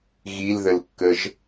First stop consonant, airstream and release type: plain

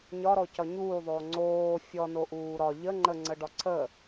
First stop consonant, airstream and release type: plain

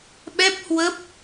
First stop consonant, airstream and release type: implosive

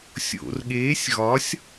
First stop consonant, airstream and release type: implosive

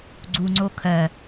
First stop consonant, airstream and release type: click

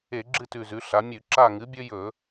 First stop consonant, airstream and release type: click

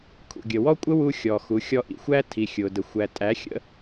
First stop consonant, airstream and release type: aspirated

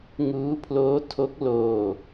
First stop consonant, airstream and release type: aspirated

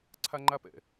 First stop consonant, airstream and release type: click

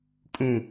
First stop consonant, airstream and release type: ejective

